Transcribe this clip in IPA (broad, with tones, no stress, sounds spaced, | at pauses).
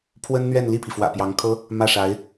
pʰ w ə˥ n n̪ ɥ ɛ˥˧ n l i˥˩ pʰ i˩ f w ä̰˨˩ p j ɑ˧˥ ŋ kʰ ɤ˥ | m ä˥˩ ʂ a˧˥ ɪ̯